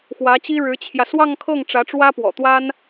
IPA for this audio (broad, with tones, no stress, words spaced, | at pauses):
xwä˧˥t͡ɕi˥ ɻɻ̩˧˥t͡ɕʰjä˧ swɑ˥˧ŋkʰɤ˥˩ŋ ʈ͡ʂä˧˥ʈ͡ʂwä˥pwɔ̰˨˩t̪wa˥n